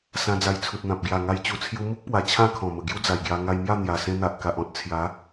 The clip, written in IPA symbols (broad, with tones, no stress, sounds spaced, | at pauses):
s ã˧ d͡z a˧ j t͡sʰ u˨ t̚ n̪ ã˨ p̚ ɡ j a˨˩ ŋ a˧ j t͡ɕ u˨˩ t͡sʰ j u˧ m u˦ k̚ p w a˨˩ t͡ɕʰ ã˥˧ kʰ ɔ̃˨˩ m ə˨˩ ɡ j u˦ d͡z a˨˩ j ɡ j a˧ ŋ a˧ j m j a˥˧ n̪ j a˨˩ s ẽ˧ n̪ a˨ ʔ k a˨ ʔ ɔ̃˦ t̚ t͡sʰ j a˨˦